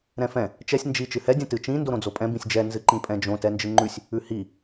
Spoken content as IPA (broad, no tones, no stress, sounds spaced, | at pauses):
ɾ ɛ̃ f ɛ̃ | t͡ʃ ɛ sʲ n d͡ʒ i t͡ʃ ɨ h ɛ dʲ ɛ̃ t ɨ t͡ʃ ĩ n d o ɾ õ d͡z o pʼ ɛ̃ b ĩ sʲ d͡ʒ ɛ n z ɨ ǃ ĩ pʼ ɛ̃ d͡ʒ õ t ɛ n d͡ʒ ɨ ŋ͡ǃ ʉ sʲ | ʉ h i